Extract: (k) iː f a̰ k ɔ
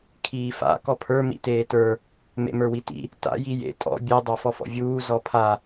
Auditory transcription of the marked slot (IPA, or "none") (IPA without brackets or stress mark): kʰ